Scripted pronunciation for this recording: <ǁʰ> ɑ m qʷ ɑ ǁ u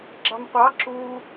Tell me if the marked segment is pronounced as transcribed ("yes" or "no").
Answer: no